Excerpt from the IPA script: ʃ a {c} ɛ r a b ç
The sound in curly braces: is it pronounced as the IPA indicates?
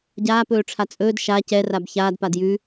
yes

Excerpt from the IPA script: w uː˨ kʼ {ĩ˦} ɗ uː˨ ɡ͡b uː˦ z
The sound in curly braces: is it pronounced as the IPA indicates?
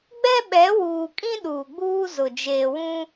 yes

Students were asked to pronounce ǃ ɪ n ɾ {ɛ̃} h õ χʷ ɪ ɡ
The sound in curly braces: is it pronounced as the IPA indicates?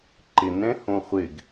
yes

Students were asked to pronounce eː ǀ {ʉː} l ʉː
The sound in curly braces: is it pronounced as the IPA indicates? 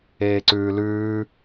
yes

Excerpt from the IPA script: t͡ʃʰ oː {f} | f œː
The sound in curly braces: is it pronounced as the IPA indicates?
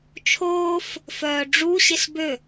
yes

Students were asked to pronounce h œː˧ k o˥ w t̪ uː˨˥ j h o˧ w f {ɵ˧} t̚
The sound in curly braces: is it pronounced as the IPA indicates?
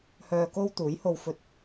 yes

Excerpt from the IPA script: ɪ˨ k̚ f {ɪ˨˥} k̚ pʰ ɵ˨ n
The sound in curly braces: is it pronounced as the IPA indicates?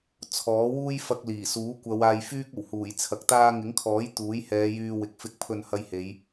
yes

